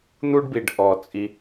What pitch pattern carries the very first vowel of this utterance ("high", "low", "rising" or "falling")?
high